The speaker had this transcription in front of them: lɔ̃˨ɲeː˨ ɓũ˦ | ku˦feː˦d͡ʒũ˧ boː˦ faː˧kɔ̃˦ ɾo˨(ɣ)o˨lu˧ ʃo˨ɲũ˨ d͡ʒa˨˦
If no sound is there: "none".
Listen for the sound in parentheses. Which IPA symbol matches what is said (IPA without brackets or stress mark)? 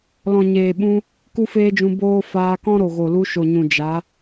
ɣ